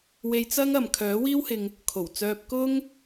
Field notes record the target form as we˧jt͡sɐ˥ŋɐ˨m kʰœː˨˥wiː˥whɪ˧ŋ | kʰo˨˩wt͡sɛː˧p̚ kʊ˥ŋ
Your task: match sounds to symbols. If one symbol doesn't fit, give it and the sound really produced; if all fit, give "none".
ɛː˧ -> œː˧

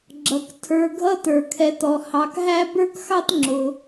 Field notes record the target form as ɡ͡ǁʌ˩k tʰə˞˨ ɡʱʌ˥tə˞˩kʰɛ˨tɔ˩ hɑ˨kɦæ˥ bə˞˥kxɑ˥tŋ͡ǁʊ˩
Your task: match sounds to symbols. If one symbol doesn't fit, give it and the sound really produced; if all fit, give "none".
none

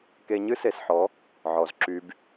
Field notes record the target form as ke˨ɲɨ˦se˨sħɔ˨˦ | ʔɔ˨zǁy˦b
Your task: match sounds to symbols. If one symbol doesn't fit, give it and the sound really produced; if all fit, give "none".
ʔ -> ʕ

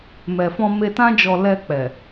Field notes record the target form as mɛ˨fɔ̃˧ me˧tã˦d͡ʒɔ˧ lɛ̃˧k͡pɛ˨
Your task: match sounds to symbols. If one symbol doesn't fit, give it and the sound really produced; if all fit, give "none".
ɛ̃˧ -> ɛ˧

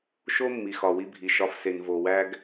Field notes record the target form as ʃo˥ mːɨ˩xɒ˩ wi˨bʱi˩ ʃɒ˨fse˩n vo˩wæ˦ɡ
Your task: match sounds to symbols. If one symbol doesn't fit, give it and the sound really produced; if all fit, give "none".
ɨ˩ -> i˩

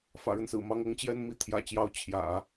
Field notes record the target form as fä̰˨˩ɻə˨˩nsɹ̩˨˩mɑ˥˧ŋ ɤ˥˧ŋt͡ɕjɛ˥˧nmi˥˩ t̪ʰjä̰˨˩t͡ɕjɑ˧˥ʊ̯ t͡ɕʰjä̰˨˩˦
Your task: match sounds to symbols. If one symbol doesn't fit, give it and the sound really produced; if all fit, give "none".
ə˨˩ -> ə˦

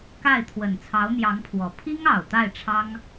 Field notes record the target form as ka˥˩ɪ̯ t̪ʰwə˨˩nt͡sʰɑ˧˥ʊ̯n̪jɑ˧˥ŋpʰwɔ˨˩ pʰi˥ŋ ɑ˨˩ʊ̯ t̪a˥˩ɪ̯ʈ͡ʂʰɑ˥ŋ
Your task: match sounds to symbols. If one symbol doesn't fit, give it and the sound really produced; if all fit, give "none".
none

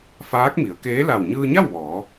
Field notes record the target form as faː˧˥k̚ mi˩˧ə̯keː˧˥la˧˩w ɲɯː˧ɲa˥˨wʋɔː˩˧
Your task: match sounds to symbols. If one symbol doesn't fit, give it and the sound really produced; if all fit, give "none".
none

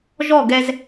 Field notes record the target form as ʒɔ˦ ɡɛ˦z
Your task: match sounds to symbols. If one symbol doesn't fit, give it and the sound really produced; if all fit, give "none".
ɔ˦ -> ɔ˦˨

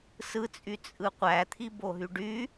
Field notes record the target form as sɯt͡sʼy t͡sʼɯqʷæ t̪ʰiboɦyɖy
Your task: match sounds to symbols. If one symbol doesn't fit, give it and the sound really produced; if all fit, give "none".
none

